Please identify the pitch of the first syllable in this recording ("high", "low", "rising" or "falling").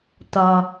low